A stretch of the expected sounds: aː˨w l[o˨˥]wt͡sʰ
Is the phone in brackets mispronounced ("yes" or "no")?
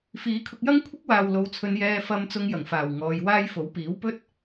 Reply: yes